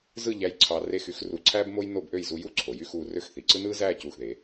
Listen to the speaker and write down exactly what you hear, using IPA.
zɯ˥˧ʎæ˧j ǀʰɑ˧re˥˧x y˥˧xru˧˩ǀʰæː˥b mo˥jno˥˧bʔø˥˧j zu˧ju˥ ǀʰo˩˧jy˥˧xuː˧rø˥˧x θi˩˧ǀɯ˥ nɯː˥zæː˥˧ cuː˧˩xðe˩˧

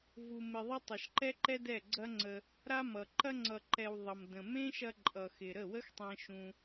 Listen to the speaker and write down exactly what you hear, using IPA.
vu˨mɪ˨ðˤʌ˧ tˤɐ˨ʃǃɛ˦ǃɛ˦dɛ˦˨ ɡ͡ǀɐ˦ ŋ͡ǀə˧ | ɾa˦mʌ˨ ǃɐ˧ ŋ͡ǀʌ˨ǃɛ˨w ðˤʌ˨m də̃˨ mẽ˦ʃɐ˧ ǃʼʌ˨xɪ˨ ɾə˦˨wə˦xtˤɛ̃˧ ʃũ˧

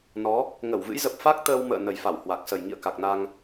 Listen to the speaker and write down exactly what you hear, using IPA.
nɔ˨˦ | ŋə˧˩wvɨ̰˧˥jzə˨˩p̚fa˦˥k̚ t̪əː˧wmə̰ː˧˨ nə˨˩jfa˧˩w hwa˨˩k̚ sə˨˩jŋḭ˧˨ə̯ka˨˩k̚na˧ŋ

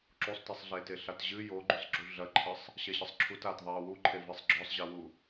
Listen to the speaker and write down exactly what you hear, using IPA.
ǁusˤtisˤɮeːte ɬatʑɨ joɡ͡ǃusˤɡ͡ǁu ɮɐǃʰɨsˤ | ɕɛɕɘsˤǁʰut atðˤeː wuǃʰe vesˤɡ͡ǁɔsˤʑɛwu

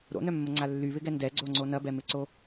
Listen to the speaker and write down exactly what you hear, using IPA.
ɾo̰nœmːəŋ͡ǀa lːyβɪɡɛ ndɛɡ͡ǀoŋ͡ǀo nɐbɛmɪǀo

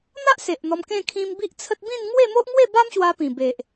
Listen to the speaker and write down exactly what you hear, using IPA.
n̪a˦ʔ se˨ʔn̪ɔ˧mkẽ˥˧ kʰĩ˧m bi˦ʔt͡sʰə˦t̚ bĩ˥˧n ŋwe˥˧mo˦ʔ ŋwe˥˧ba˦mɕwa˧ pĩ˨˩be˨ʔ

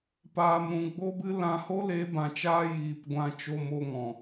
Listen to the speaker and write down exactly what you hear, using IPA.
paː˨mɾũ˨ɡ͡bo˦bɨ˦ lã˧ ho˦le˨˦bã˨t͡ʃaː˧ jiː˨p ɡʷã˧t͡ʃo˧mo˧ŋɔ̃˨

